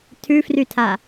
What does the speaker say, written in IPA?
tʰ ʉ f r y tʰ a

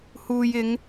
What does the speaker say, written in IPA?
h uː˨ j ɪ˨˧ ŋ

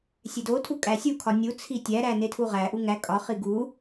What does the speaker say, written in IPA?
sʲ e d o tʰ u kʼ æ sʲ u kʰ ɒ nʲ u t͡sʰ i tʲ æ ɾ æ n e tʰ u ʁ æ ʔ u ŋ æ kʼ ɒ χ i ɡ u

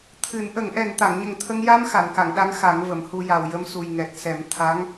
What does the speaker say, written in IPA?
t̪ʰ ɨ˨˩˦ n ʔ ə˨˩˦ ŋ ʔ ɛ˨˩ n t̪ a˨˩˨ ŋ ɲ ə˨˩ ŋ t̪ʰ ə˧ ŋ j a˧ m x a˨˩˨ n k a˨˩˨ ŋ ɗ a˧˥ ŋ x a˨˩˦ ŋ v ə˨˩˨ m h u˧ j a˨˩ w j ə˧ m s u˨˩ j ŋ ɛ˨˩ t̚ s ɛ˨˩˦ m t̪ʰ a˧˥ ŋ

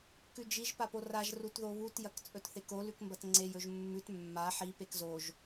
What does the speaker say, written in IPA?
k ʉ d͡ʒ i ʒ p a p o r a ʒ r u t ð o β u t j ɐ k t͡sʼ ɵ t θ e k o l ʉ k m b ɐ t ŋ͡ǀ e j ɵ ʒ mː ʉ t mː a ħ i p e k z o ʒ

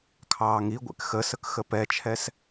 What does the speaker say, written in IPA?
kʰ ɑː ŋ i ɡʷ ɛ̰ k x ə s ə k x ə p ɛ t͡ʃʰ ɛ s

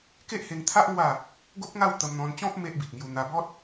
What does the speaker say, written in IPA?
k e˦ ʔ h e˧ ŋ t̪ʰ a˦ ʔ ŋ w a˥˧ | ɡ o˦ p̚ ŋ a˥˧ w t̪ ə˧ m n̪ ɔ̃˧ n t͡ɕ ɔ̃˦ p̚ m e˦ ʔ b i˨ t̚ ŋ j u˧ n̪ a˧ b ɔ˦ t̚

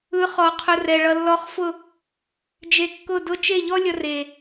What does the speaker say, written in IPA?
ɯ˨˦ χ ɔ˨ qʰ ʊ˧ r ɛ˨ ɭ ʌ˧ lː ɔ˧ χ f ʊ˦˨ | d͡ʒ e˧ kː ʊ˦˨ d ʊ˧ t͡ʃ e˦˨ ʎ ɔ˦ lʲ ʌ˧ r e˨

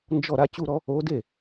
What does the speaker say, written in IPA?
n d͡ʒ ɔ˥˩ ɾ a˥ t͡ɕ u˥˧ ɾ ɔ˥ | o˧˥ d e˥˩

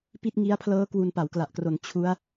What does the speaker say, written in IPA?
p i˥˩ t̚ ŋ i˦˥ a̯ pʰ l ɤː˦˥ k w u˧ n p a˩˦ w k l a˨˩ ʔ k r o˩˦ n t͡ɕʰ u˦˥ a̯

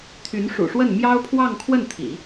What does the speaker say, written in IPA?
t̪ʰ y˧˥ n ʂ ṵ˨˩ ʂ w ə˥˩ n m j ɑ˥ ʊ̯ pʰ w ɑ˥˧ ŋ kʰ w ə˥˩ n t̪ʰ ḭ˨˩˦

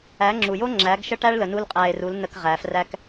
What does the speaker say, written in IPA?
æ˨˦ ŋ͡ǁ u˨ j o˦ ŋ͡ǁ æ˨˦ ɡ ʃ ə˦ ʈ æ˦ ɭ l ə˨ n u˦ l qʼ æ˧ e̯ r u˨˦ l n ə˧ k ʁ æ˨ f r æ˦ k

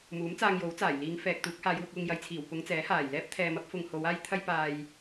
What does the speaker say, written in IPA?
m uː˨˥ m t͡s aː˧ ŋ j o˨˥ w t͡s aː˨˩ j l iː˨˧ ŋ f ɛː˨ k̚ t̪ uː˨˥ k̚ h aː˨˧ j w ʊ˧ k̚ w ʊ˧ ŋ j ɐ˨ j t͡sʰ iː˨˩ w p ʊ˨˧ ŋ t͡s ɛː˨˥ h aː˨˩ j l ɛː˥ p̚ t̪ʰ ɛː˧ m ɐ˥ p̚ f ʊ˧ ŋ h o˨˧ w aː˥ j t̪ʰ ɐ˥ j p aː˧ j

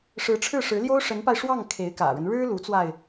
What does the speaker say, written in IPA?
ʂ ɻ̩˧˥ ʈ͡ʂʰ ɻ̩˥˩ ʂ ɻ̩˧˥ l j o˥ ʊ̯ ʂ ə˧˥ n p a˧ ɪ̯ ʂ w ɑ˥˩ ŋ kʰ e˧˥ ɪ̯ k ä̰˨˩ ɻ ə˦ n ɻ ɻ̩˥ l u˧˥ t͡s w a˧ ɪ̯

